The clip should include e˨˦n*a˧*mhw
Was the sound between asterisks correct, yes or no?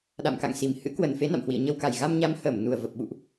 no